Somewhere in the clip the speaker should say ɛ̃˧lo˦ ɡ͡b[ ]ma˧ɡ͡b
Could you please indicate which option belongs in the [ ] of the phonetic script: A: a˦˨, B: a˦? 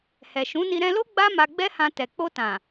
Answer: B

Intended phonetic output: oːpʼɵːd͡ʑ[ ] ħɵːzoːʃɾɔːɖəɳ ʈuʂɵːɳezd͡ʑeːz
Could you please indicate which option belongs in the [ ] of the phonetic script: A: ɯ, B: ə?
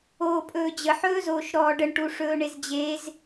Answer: B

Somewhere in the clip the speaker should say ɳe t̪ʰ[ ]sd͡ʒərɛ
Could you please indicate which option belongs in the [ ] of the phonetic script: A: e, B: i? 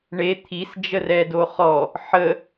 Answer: B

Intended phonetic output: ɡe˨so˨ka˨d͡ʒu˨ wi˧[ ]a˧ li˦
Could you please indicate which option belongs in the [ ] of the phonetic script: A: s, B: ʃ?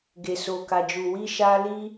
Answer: B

